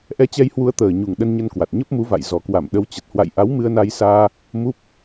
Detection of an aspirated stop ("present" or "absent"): absent